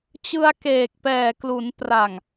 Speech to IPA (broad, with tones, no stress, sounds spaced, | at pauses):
t͡ɕ ɯ˧ a̯ k eː˨˩ k̚ p ɛː˨˩ k l u˩˦ n p r a˨˩ ŋ